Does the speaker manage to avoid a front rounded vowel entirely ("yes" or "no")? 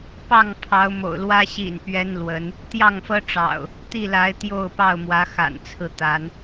yes